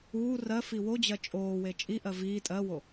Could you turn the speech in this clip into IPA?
uː rɜ fiwod͡ʑɜ t͡ʃʼoːwe t͡ʃʼiʔɜ viː tʼɜwo

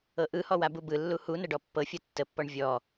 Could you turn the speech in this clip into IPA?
ɤʔɯhɔ wabubɯlːu hunə ɖɔpːɤfʲɤ tːəpːɔɳ vʲɔ

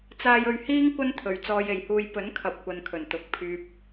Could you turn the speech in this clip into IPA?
t͡saː˧jɵ˧ɥhiː˥ŋ kʷɐ˥nt̪ʰɵ˨ɥ t͡sɔː˧je˨jhuː˧j pɵ˨˥nkʰɐ˨p̚kʷɐ˨n kʰɵ˨˩nt̪ʊ˨k̚pʰyː˧p̚

